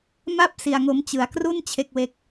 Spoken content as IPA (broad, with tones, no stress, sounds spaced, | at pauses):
m a˥˩ p̚ s i˧ a̯ ŋ o˦˥ m t͡ɕ ɯ˧ a̯ k r u˥˩ n t͡ɕʰ e˥˩ k̚ w e˦˥ k̚